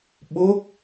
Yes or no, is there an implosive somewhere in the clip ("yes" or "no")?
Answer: yes